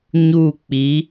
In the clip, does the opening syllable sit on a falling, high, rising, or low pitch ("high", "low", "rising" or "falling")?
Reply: falling